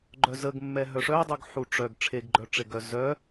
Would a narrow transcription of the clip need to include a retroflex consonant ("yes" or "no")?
yes